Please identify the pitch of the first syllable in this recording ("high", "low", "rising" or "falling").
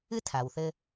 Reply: high